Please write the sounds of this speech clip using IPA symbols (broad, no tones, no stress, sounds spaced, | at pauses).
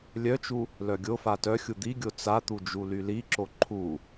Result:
lʲ œ t͡ʃ u | l œ ɡʲ o f a t œ xʲ u d̪ i ɡʲ o t͡s a t̪ u d͡ʒ u l y l i ǁ o ǃʰ u